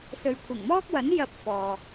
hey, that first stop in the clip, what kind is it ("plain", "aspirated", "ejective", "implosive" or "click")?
aspirated